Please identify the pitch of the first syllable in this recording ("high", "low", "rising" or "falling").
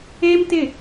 high